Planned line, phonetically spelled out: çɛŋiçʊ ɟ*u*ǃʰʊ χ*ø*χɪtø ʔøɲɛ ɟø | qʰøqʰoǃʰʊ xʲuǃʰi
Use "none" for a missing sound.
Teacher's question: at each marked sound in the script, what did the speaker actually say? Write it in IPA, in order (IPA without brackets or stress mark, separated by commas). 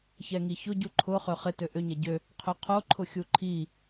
u, ø